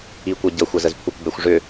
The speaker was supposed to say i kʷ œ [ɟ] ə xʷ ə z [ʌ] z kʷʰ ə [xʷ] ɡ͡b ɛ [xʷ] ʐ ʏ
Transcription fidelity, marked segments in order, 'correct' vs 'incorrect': correct, incorrect, incorrect, correct

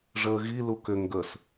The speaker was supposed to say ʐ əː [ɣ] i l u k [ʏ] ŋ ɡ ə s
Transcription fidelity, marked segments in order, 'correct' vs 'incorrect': correct, correct

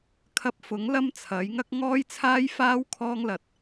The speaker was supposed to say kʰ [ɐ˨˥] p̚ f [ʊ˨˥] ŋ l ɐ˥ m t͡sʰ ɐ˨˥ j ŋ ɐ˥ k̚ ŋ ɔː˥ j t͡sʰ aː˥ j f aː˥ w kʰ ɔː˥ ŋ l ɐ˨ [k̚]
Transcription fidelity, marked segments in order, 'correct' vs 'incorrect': incorrect, correct, incorrect

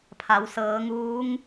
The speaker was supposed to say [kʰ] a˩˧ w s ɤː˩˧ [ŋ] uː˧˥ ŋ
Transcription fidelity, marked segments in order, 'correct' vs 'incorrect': incorrect, correct

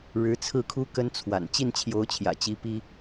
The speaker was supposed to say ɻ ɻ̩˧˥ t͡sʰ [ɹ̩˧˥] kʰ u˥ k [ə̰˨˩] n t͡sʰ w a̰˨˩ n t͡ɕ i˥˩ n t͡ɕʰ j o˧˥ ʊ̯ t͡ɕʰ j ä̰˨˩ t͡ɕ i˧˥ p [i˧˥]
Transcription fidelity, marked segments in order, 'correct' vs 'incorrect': incorrect, incorrect, incorrect

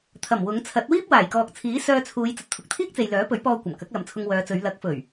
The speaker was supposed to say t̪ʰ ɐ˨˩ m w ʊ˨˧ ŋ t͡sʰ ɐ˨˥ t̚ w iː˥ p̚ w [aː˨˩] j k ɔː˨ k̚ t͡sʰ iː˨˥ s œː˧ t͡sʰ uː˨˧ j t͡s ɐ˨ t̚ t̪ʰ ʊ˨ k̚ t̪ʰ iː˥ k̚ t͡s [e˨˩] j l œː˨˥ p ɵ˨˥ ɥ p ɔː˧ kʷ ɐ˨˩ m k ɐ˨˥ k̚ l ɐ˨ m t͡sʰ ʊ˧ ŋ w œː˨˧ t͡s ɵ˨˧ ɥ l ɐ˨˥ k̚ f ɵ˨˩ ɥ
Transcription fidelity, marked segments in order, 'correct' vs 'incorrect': correct, incorrect

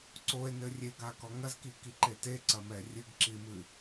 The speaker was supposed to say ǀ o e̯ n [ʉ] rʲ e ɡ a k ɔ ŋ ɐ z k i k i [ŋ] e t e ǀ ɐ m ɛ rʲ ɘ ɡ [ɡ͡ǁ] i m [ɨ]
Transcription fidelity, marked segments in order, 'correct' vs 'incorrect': incorrect, incorrect, incorrect, correct

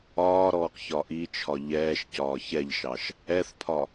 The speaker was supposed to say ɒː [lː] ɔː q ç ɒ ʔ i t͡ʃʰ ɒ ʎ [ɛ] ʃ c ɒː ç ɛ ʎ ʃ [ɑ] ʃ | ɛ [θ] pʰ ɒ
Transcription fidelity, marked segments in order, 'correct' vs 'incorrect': incorrect, incorrect, correct, correct

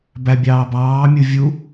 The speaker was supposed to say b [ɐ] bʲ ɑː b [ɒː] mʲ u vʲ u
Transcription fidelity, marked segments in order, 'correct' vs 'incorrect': incorrect, incorrect

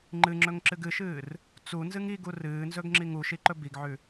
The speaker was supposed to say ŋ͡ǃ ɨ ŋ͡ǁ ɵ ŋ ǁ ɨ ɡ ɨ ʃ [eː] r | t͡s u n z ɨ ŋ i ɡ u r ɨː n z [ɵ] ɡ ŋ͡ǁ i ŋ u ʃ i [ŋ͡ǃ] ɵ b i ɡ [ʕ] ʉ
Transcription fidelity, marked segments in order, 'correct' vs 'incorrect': incorrect, correct, incorrect, correct

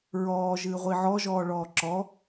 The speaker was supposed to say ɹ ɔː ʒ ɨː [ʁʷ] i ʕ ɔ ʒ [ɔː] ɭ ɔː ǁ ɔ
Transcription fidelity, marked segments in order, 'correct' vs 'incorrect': correct, correct

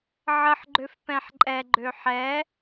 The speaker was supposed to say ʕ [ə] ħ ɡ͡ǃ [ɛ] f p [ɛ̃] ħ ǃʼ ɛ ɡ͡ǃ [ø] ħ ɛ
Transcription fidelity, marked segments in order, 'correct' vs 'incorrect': correct, incorrect, correct, correct

